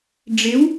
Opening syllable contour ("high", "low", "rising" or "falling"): rising